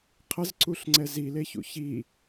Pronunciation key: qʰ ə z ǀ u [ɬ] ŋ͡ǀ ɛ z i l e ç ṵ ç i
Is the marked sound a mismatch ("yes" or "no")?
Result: no